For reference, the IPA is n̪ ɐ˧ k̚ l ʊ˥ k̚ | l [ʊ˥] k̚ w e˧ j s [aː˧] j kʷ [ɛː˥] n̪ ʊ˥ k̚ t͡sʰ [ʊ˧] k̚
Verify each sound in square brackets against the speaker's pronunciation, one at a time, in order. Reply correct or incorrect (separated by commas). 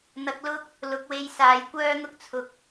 incorrect, incorrect, incorrect, correct